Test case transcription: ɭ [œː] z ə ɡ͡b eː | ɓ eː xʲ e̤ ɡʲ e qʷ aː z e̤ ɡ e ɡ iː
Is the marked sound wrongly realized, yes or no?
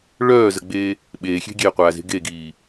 no